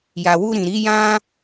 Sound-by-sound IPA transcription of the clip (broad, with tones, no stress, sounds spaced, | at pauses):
j a˨ w u˧ ɾ ĩ˨ ɾ i˨˦ j ã˦